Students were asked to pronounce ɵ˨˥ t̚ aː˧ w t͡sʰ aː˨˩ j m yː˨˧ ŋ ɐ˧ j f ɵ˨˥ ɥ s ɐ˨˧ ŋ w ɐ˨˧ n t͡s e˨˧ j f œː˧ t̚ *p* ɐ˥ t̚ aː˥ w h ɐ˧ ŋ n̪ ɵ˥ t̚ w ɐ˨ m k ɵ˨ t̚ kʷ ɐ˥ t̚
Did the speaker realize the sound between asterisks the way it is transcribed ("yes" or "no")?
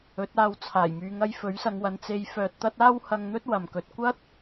no